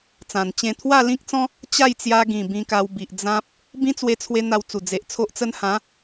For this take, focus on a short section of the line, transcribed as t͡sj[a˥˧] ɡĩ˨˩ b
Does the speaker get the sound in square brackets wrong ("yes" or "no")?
yes